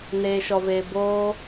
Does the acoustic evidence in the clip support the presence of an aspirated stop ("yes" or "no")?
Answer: no